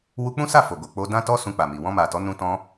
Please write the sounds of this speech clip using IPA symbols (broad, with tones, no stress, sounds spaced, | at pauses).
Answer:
w u˧ k͡p ũ˦ s a˦˨ f o˨ ɡ o˨ k͡p o˧ d ã˦ t ɔ˦ s ũ˧ k͡p a˨ m i˨ w ɔ̃˧ m a˨ t ɔ˨˦ n ũ˧ t ɔ̃˧